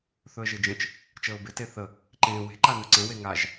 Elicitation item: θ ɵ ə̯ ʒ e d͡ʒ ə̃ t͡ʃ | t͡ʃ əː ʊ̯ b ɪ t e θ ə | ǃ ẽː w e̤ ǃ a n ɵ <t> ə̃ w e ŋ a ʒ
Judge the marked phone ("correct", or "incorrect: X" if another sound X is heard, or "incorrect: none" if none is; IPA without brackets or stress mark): incorrect: ǀ